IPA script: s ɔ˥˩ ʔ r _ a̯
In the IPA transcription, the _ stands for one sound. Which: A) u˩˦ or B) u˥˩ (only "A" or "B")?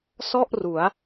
A